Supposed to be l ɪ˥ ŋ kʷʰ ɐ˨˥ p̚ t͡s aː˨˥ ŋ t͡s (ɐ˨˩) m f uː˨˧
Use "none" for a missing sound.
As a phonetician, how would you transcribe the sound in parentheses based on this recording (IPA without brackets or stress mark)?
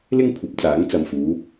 ɐ˨